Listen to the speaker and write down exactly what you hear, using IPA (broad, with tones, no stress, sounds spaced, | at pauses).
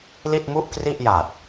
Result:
l i˥˩ t̚ m u˥˩ ʔ k r i˥˩ ʔ j a˨˩ t̚